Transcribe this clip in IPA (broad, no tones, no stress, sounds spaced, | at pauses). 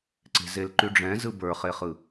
ǀ e̤ z e l ǃ y ɖ͡ʐ ɛ̃ z ɯ b ə˞ χ e χ ɯ